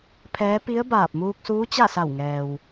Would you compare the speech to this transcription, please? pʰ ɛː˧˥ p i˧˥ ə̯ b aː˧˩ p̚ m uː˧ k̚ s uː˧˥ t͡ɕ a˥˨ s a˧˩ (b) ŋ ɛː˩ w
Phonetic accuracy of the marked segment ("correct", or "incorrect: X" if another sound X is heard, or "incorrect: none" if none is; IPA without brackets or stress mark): incorrect: w